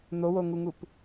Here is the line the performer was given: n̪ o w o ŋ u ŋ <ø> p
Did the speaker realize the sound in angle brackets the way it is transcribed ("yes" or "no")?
no